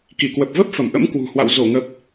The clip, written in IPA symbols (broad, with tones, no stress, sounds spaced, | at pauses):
k i˧˩ k w ə˨˩ p̚ v ə˦˥ p̚ f ə˧˩ m ʔ ə̰˧˥ m k w ṳ˨˩ h w a̰˧˨ w z o˧˩ ŋ ə˨˩ p̚